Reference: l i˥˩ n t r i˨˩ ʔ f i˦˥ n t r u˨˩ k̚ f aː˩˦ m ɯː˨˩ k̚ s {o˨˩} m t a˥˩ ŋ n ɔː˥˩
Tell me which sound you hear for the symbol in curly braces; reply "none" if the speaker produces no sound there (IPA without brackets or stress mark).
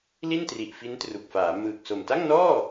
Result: o˨˩